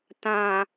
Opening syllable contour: low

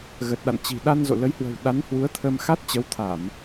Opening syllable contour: low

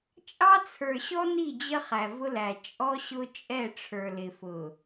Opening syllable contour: high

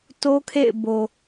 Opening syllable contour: high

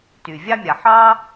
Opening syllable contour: low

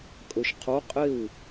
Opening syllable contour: low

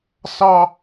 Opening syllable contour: high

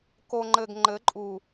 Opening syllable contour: low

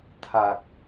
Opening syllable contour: low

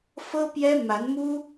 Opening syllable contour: high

